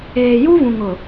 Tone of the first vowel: low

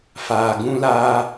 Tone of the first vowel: low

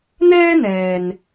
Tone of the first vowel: high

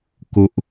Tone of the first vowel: low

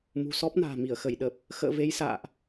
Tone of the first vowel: low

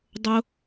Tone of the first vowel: high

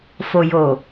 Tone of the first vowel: low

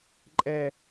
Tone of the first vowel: high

